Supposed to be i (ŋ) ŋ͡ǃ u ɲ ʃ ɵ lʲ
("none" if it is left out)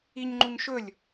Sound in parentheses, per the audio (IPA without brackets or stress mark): ɲ